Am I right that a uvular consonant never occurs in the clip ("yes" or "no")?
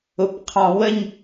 no